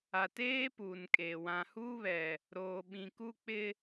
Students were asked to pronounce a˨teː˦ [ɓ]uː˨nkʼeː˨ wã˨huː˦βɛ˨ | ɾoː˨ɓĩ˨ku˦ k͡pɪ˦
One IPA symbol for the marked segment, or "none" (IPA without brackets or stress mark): p